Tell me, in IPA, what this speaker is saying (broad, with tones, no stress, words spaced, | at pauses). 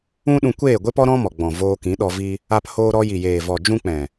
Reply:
ũ˦ɗũ˧ kʷeː˦˨ɡʷe˦pɔ˦ɾɔ̃˦ mɔ˨ɡ͡bɔ̃˨ voː˧kĩ˨˦ɗɔ˧ vi˧ | a˦phoː˦ɾɔ˦ ji˨jeː˨vɔ˨ d͡ʒũ˦k͡pɛ̃˨